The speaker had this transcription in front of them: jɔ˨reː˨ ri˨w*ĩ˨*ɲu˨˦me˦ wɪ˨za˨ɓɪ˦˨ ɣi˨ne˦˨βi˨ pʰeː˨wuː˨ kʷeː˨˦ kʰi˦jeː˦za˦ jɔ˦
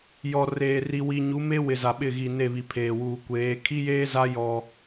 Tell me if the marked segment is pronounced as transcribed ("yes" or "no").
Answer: no